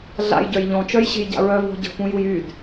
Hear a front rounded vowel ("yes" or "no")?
yes